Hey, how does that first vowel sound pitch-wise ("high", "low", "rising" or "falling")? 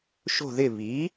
falling